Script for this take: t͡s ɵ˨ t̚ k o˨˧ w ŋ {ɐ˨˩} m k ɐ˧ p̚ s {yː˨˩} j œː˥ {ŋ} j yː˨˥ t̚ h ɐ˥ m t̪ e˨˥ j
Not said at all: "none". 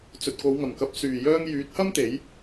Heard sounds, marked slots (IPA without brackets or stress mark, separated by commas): ɐ˨˩, yː˨˩, ŋ